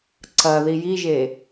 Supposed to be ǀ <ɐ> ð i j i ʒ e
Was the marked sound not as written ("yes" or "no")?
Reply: no